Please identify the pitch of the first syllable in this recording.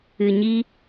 low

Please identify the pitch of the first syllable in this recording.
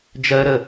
high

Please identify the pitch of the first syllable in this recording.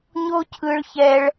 high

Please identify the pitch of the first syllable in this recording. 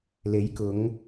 rising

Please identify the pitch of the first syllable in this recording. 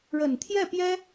low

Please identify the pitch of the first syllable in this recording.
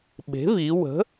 rising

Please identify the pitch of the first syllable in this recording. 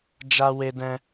high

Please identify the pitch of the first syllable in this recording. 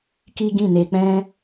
high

